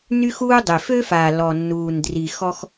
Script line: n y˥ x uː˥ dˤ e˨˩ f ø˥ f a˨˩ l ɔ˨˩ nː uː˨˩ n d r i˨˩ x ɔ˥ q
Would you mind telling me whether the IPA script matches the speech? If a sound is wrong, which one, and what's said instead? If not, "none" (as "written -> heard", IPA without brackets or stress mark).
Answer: q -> x